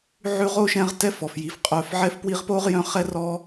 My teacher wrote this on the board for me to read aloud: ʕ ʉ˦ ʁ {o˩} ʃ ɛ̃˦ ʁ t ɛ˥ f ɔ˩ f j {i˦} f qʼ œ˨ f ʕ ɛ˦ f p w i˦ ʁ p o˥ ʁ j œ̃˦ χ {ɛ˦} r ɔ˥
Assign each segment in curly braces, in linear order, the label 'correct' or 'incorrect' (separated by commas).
incorrect, incorrect, incorrect